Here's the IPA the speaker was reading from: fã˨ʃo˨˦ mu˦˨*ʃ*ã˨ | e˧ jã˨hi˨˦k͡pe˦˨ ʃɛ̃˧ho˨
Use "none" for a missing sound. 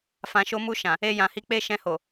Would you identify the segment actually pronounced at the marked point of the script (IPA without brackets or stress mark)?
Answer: ʃ